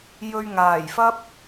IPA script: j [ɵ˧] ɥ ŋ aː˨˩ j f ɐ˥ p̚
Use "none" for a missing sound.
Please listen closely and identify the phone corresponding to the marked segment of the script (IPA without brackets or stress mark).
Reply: ɵ˧